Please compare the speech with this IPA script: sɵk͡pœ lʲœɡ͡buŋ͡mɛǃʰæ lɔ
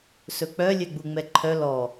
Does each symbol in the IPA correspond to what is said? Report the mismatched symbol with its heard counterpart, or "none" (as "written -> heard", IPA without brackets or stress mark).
æ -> œ